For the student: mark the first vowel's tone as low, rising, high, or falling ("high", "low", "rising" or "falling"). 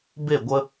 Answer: falling